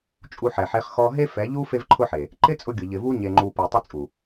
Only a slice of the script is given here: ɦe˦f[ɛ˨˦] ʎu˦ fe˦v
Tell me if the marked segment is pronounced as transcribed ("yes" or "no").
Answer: yes